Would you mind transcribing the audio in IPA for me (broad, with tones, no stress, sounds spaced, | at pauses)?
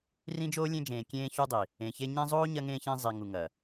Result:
r ĩ˦ d͡ʒ oː˦ lʲ ẽ˦ d͡ʒ ẽː˨ kʲ ẽː˦ ç u˦ dˤ i˨ | ẽ˨ ç e˦ ɲ ẽ˦ zˤ oː˦ ɲ ɐ˦ ŋ ẽː˦ ç ẽ˦ zˤ i˨ ŋ u˨ ŋ ɐː˨